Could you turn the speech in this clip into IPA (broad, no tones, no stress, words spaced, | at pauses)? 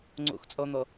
ŋ͡ǀṵxt͡sʼon̪o